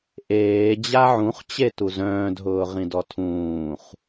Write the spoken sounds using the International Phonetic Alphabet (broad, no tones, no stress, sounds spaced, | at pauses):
ʔ eː d͡ʑ a ʕ ũ χ t͡ɕ e t u z œ̃ː d ɦ ʊː ʁ ĩ d ɔ tʰ ũː χ